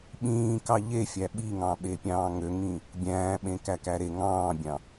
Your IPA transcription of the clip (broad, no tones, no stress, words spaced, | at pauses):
ɓĩː kɑʎefʲæ ɓiŋɑ̃ɓe pʲɑ̃ːŋøŋĩ | bʲæ̃ːɓẽ kækæɾe ŋɑ̃ːbʲɑ̃